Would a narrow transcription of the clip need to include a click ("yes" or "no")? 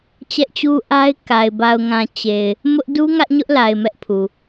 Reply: no